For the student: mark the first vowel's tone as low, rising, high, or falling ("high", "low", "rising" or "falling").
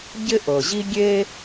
high